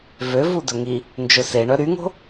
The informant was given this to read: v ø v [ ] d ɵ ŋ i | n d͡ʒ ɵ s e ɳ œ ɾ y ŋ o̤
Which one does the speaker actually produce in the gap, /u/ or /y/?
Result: u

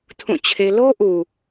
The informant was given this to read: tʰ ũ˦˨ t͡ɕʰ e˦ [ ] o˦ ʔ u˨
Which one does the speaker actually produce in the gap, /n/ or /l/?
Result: l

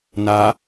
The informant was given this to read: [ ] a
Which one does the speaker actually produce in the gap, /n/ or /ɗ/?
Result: n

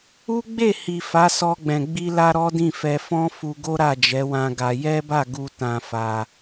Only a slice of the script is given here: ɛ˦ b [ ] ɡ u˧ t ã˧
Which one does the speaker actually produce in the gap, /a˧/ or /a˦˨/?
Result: a˦˨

